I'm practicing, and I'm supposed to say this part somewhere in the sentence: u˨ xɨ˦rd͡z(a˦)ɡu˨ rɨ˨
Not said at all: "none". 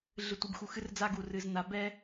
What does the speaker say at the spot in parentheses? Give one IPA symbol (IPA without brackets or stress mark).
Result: a˦